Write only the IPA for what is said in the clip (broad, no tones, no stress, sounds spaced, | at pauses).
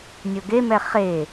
nʲ o ɡ e m ɛ χ e